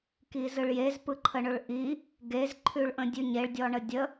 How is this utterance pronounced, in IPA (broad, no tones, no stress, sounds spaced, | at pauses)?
k i z ɯ ɭ j e z p ɯ ǃʰ ə ɳ ʊ ɭ ʔ i | ɡ e z ǃʰ ʉ ɭ ʔ ə̃ dʲ ʉ ɲ e ɭ dʲ ɔ ɳ ə dʲ ə